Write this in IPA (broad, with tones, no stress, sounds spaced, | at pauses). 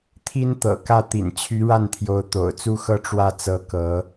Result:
t̪ʰ i˥ n t̪ ɤ̰˨˩ k ä˥˩ t̪ ḭ˨˩ n t͡ɕʰ y˧˥ ɻ a˥˩ n t̪ʰ j o˧˥ ʊ̯ t̪ o̰˨˩ ʊ̯ t͡s u˥ x ɤ˥˧ ʈ͡ʂ w ä˥˩ t͡s ɤ˧˥ k ɤ˧˥